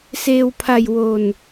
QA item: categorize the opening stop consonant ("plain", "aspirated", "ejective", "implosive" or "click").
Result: aspirated